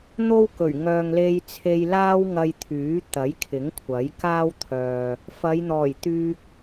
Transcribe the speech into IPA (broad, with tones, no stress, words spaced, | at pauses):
n̪o˥wkɵ˨˩ɥ ŋœː˨ŋle˧jt͡sʰe˧jlaː˥w ŋɐ˧jt̪ʰyː˨˥ t̪ɐ˨˥jkʰɪ˨˥ŋkʷʰɐ˨˥jkaː˥w t̪ʰœː˨ | fɐ˨˧jn̪ɔː˨˩j t̪yː˧k̚